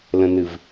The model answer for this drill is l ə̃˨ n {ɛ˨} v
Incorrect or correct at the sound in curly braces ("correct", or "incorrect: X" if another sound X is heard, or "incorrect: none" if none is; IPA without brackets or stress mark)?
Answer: incorrect: ɨ˨